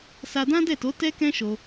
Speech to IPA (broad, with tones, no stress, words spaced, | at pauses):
sa˧dã˦dɛ˦˨to˨˦ tɛ˦kɛ̃˦ʃo˧